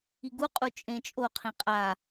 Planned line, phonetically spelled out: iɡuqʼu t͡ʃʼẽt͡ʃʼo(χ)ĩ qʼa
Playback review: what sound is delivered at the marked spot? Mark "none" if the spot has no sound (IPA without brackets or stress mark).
qʰ